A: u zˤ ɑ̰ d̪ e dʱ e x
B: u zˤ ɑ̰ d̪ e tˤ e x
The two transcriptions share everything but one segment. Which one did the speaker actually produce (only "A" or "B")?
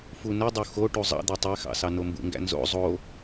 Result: B